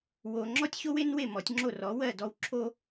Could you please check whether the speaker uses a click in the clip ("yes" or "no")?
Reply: yes